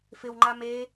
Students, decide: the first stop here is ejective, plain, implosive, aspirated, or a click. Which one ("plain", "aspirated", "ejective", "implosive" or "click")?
click